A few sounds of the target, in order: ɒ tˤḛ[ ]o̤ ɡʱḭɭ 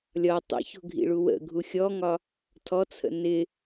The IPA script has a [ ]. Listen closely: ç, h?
ç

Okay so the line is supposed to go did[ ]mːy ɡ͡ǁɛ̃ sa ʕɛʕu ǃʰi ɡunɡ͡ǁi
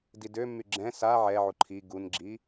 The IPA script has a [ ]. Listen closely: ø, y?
ø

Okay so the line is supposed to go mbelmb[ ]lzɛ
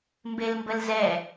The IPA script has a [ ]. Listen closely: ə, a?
ə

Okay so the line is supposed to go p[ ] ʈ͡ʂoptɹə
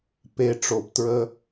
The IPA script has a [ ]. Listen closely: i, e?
e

